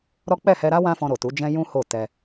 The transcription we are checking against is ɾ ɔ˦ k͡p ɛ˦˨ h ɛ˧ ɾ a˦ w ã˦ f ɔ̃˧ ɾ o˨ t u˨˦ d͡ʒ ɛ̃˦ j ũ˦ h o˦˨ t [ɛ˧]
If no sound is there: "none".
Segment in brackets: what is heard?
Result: ɛ˧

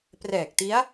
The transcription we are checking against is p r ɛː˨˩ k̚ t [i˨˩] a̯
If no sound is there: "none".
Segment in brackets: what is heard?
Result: i˦˥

